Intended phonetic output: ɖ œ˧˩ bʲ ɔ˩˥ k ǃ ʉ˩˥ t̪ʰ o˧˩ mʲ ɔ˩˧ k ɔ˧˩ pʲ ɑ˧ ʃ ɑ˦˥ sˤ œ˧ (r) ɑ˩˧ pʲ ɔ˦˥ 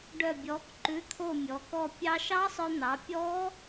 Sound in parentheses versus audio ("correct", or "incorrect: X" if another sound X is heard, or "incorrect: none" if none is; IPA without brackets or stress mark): incorrect: n̪